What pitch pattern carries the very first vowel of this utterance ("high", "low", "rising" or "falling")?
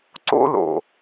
high